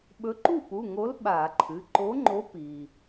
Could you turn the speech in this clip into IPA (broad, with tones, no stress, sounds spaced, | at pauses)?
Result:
ɓ ɵ˨˥ ǃ u˥˩ p u˩˧˩ ŋ o˨˥ l ɓ a˧˩˧ ǃʰ ɨ˩˧˩ ǃ o˨˥ ŋ͡ǃ o˨˥ p i˩